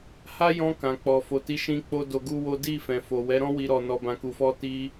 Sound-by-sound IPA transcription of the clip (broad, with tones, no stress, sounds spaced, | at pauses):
h a˦ j ɔ̃˧ k ã˨ k͡p ɔ˨ f o˨ t i˨˦ ʃ ĩ˧ k͡p o˦ d o˧ ɡ u˦ w o˦ d i˦˨ f ɛ̃˨ f o˨ w ɛ˨˦ ɾ ɔ̃˦ w i˦ ɾ ɔ˧ n ɔ˧ b ã˧ k u˧ f ɔ˦ t i˧